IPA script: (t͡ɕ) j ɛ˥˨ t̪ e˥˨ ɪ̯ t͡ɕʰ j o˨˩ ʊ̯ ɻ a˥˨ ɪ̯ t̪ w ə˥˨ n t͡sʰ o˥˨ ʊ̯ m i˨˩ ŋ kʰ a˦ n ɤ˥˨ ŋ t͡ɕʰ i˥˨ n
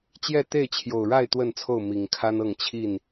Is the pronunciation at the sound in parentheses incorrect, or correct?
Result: correct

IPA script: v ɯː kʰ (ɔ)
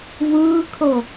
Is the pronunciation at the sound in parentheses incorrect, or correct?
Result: incorrect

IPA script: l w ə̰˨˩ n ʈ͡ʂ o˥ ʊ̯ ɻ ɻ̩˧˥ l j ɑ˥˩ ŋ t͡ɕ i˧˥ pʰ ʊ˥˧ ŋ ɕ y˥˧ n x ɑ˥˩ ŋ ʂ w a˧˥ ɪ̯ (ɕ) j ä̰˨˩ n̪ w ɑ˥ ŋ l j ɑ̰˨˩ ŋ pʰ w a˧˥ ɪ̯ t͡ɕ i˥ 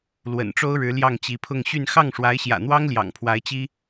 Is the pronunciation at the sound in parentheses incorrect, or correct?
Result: correct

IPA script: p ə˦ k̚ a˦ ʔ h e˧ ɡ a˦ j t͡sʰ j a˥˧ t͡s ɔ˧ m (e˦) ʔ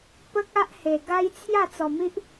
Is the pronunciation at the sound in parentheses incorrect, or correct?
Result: incorrect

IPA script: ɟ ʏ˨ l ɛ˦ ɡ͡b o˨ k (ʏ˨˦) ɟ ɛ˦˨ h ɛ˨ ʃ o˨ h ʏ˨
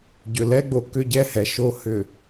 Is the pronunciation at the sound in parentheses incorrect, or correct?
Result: incorrect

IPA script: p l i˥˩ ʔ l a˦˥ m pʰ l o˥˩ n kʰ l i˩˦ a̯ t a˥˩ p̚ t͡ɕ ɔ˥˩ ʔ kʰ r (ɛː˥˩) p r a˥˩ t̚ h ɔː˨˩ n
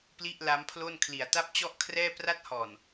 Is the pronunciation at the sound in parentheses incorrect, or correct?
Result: correct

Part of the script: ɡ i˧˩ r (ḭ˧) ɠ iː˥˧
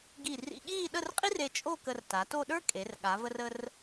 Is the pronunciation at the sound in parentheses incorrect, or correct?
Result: correct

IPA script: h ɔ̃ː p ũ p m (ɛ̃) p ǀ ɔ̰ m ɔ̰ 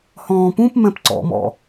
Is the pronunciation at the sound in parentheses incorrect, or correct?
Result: correct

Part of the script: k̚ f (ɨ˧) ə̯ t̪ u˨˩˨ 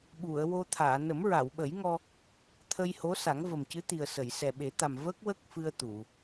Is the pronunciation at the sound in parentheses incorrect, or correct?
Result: correct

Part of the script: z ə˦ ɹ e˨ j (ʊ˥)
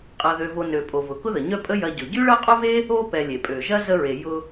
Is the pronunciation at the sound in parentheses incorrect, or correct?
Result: incorrect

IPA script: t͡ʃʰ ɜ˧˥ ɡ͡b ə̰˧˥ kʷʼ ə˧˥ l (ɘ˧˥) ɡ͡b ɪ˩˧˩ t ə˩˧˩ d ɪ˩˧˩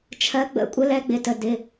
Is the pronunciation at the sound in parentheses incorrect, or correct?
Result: incorrect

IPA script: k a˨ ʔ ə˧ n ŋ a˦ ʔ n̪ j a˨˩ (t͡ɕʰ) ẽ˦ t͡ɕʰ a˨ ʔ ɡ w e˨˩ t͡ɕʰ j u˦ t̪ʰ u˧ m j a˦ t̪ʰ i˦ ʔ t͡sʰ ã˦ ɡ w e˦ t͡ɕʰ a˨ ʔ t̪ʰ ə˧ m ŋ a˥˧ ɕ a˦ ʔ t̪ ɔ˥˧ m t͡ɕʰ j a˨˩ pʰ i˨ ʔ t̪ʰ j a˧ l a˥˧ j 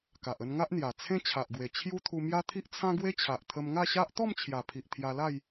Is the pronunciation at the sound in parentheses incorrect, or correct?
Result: incorrect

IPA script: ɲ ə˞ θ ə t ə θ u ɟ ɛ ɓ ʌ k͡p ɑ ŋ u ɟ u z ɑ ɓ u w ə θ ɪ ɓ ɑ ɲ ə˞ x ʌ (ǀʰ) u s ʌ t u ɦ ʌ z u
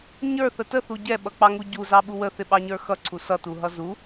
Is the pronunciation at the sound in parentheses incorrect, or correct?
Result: correct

